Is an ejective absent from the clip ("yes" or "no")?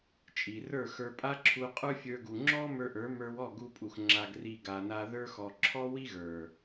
no